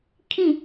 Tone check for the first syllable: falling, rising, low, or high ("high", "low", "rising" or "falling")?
falling